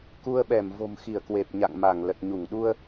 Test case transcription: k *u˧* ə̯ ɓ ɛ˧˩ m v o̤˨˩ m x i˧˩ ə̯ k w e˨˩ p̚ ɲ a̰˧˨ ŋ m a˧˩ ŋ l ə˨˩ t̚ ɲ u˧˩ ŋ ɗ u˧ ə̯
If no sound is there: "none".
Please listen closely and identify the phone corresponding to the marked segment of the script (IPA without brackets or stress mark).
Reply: u˧